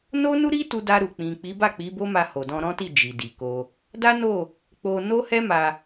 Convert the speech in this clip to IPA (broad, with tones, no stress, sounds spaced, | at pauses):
n o˦ n u˦ ɾ i˦ t u˧ d a˧ ɾ u˨ k͡p ĩ˨ k͡p i˨˦ b a˦˨ k͡p i˨˦ b o˦ m a˧ h o˨ d ɔ̃˧ ɾ ɔ̃˦ t i˦˨ d͡ʒ i˨ d i˨ k o˧ | d a˦ n o˦˨ | k͡p o˧ n o˦ h ɛ˦ m a˧